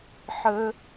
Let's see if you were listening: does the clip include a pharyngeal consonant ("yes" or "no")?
yes